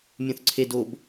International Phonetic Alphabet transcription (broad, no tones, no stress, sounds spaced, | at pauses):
mʲ ũ θ ǀʰ e d o b